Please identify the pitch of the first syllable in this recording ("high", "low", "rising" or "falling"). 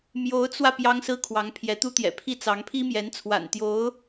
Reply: rising